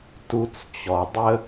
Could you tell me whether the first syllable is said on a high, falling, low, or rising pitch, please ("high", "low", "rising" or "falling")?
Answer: high